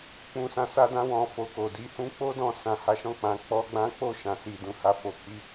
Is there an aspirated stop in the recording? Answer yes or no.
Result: no